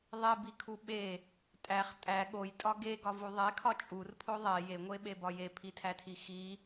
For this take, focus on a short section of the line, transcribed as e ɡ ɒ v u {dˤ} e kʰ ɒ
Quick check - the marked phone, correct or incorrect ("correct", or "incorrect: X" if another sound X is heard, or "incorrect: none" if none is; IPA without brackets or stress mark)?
incorrect: ðˤ